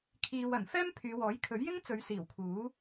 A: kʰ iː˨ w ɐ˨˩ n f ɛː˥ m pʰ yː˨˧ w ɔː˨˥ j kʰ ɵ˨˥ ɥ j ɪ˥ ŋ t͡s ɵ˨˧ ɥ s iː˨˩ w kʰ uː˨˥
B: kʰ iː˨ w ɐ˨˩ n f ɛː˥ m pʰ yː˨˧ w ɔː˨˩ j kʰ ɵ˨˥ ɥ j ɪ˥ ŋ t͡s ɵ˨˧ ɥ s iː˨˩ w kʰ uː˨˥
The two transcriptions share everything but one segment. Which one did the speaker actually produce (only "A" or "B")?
A